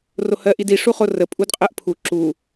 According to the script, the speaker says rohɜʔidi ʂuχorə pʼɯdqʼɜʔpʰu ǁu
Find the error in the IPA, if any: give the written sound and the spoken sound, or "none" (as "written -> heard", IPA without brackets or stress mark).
ɯ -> u